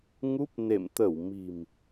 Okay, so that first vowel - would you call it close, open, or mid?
close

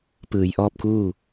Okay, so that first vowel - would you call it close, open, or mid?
close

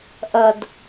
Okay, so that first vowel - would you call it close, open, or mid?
open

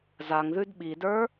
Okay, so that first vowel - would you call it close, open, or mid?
open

